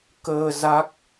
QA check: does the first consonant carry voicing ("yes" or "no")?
no